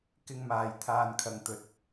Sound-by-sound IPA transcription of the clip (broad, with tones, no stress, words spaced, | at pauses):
kɪ˥ŋmaː˧j t̪ʰaː˧nkʰɐ˨ŋt̪ɵ˨˥t̚